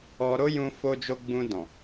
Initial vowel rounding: rounded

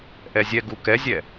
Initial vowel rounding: unrounded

